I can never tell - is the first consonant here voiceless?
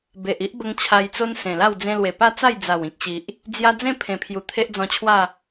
no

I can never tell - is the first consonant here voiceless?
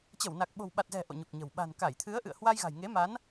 yes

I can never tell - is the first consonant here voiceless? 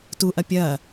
yes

